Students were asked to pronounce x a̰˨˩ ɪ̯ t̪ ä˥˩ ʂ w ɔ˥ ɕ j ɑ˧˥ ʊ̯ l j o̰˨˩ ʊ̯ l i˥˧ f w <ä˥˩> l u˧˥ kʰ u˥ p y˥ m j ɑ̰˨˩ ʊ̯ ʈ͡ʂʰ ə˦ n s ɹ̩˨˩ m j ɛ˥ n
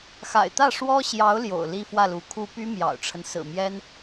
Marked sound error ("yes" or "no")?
no